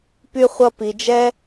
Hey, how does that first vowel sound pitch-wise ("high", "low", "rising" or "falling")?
high